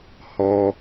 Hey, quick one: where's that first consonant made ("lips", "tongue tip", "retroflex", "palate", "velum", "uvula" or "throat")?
throat